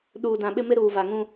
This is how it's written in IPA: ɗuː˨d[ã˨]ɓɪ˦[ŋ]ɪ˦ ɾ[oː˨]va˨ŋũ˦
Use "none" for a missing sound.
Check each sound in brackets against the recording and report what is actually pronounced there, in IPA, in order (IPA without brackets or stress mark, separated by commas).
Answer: ã˨, m, uː˨